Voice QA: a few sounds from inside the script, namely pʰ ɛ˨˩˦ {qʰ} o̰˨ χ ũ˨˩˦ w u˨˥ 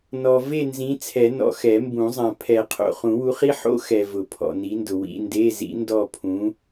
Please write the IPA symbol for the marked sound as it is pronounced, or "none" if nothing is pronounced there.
qʰ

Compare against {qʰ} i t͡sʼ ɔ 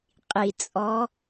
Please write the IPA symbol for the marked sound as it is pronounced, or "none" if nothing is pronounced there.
qʼ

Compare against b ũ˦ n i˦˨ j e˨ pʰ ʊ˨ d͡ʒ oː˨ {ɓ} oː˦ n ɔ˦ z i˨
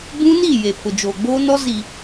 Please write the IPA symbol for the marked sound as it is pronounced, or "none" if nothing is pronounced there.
ɡ͡b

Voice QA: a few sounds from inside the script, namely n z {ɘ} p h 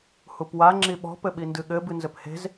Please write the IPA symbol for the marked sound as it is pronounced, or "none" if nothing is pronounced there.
ɘ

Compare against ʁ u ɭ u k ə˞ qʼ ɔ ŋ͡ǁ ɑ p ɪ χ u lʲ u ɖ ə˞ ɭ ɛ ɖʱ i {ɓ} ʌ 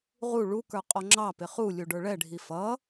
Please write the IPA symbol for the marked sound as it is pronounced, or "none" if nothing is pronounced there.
f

